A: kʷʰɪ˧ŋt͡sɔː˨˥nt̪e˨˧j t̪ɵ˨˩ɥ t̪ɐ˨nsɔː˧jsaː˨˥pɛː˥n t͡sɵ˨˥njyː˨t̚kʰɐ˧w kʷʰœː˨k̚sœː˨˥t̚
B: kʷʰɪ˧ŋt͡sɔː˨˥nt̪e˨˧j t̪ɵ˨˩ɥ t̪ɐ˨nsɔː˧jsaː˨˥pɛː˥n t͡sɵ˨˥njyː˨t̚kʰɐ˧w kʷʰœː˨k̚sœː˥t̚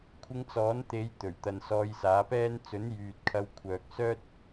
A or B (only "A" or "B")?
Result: B